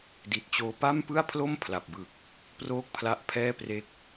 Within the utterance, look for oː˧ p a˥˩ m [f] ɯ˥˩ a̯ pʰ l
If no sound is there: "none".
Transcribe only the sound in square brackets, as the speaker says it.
p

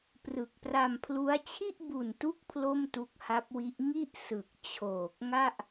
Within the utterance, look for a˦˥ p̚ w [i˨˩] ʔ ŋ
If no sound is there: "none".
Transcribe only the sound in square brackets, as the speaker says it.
i˦˥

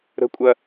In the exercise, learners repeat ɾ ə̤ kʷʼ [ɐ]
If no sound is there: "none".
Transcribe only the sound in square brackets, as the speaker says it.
ɐ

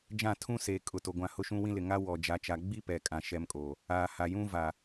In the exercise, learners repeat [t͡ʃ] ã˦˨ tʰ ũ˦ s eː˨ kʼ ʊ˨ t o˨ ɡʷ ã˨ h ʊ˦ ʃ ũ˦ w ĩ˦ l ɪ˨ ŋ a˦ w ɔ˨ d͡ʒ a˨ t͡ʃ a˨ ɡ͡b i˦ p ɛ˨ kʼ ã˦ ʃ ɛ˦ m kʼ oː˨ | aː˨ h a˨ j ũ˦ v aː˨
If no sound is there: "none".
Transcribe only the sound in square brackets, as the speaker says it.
d͡ʒ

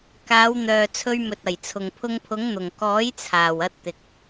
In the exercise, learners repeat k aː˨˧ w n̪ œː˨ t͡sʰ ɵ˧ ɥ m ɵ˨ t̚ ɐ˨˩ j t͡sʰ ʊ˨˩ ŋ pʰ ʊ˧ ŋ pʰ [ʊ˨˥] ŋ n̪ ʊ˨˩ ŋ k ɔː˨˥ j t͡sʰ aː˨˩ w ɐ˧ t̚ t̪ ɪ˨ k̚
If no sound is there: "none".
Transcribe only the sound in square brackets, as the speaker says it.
ʊ˨˥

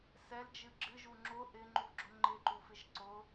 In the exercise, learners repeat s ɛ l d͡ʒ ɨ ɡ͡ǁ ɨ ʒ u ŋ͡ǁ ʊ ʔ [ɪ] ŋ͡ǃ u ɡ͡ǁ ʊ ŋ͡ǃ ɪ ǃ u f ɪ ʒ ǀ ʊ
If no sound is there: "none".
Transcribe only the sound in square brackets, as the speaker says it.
ɪ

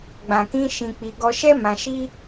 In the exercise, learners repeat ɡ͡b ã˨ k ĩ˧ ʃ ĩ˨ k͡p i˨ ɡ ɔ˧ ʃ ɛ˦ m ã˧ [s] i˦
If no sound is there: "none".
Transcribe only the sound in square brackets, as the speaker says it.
ʃ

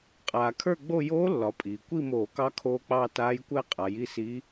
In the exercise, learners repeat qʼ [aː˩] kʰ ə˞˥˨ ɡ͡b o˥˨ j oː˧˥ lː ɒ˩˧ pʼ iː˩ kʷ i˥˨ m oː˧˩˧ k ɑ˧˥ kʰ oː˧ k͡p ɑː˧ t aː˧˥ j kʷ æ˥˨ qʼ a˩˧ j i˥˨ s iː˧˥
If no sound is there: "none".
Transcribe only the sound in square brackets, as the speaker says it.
aː˩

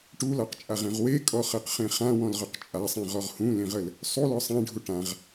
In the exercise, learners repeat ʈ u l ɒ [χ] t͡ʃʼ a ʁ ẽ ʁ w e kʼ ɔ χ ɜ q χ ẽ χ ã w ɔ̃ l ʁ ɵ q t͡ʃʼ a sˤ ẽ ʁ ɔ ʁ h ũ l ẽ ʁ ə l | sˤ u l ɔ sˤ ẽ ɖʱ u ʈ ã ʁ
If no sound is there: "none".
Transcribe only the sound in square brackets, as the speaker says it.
q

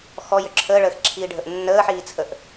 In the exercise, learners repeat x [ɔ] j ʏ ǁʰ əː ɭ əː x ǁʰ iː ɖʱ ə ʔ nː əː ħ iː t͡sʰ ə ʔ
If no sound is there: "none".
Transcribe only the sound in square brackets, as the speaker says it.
ɔ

